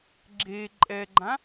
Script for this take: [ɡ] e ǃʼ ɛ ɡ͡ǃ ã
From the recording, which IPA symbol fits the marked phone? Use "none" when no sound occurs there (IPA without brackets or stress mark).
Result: ɡ͡ǁ